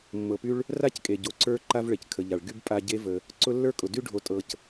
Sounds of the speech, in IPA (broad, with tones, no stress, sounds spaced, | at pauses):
mː ɤ˩ p y˦ ɭ | r a˥ c kʼ e˩ ɟ o˨ ǀ ə˞˦ ǃ a˦ v ɭ e˩ c kʰ ə˩ ʎ a˩ ɭ ɡ y˥ b pʼ a˦ ɟ e˥ v ə˨ | ǀ ʊ˦ lː ə˞˥ kʼ ʊ˩ d y˥ ɖʱ o˨ tʼ ɤ˨ c